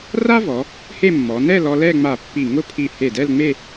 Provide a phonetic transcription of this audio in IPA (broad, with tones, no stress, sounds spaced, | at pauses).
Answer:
r a˥ v ɔ˩˧ | h e˥˧ mː ɔ˩˧ n ɛ˥˧ l ɔ˧ l ɛ˥˧ ŋ͡m a˧˩ pː i˧˩ ŋ ʊ˥˧ pʰ i˧˩ h e˧˩ d ɛ˥˧ l ŋ͡m e˥˧